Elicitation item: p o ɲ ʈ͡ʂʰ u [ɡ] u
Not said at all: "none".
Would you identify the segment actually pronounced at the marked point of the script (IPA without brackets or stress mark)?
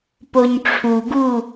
ɡ